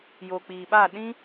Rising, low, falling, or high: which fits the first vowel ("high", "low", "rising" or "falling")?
low